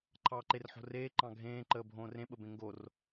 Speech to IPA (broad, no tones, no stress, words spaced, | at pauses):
ǃʰɑːǃerħo̤reː ǃɑ̃ɡʱẽː ǃəːbʱõːrẽ ɓəbẽŋɡor